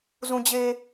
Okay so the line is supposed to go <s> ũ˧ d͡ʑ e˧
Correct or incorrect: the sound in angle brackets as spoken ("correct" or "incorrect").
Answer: incorrect